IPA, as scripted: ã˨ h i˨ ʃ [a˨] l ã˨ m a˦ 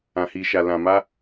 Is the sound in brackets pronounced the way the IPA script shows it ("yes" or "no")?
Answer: yes